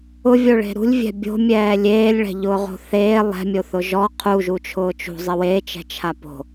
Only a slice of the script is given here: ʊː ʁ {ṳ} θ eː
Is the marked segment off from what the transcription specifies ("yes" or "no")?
yes